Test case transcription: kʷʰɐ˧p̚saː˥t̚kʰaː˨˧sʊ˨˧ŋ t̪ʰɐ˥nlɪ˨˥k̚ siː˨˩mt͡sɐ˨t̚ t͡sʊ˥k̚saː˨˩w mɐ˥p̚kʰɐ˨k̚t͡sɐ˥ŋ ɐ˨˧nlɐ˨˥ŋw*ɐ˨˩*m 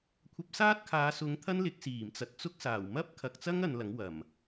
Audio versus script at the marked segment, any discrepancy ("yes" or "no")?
no